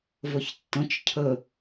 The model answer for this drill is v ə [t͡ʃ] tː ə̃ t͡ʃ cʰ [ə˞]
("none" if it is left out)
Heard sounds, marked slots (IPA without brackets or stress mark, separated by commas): ç, ə